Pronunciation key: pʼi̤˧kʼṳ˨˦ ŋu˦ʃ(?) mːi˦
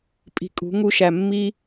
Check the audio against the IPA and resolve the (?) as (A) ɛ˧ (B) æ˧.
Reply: B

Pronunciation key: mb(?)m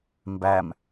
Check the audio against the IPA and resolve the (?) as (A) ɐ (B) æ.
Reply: B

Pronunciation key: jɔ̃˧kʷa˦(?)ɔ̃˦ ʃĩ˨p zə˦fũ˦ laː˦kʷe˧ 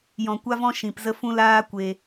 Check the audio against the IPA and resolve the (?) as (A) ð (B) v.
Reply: B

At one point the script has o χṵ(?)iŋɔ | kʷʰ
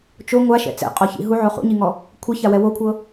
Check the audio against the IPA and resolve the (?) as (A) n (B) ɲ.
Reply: B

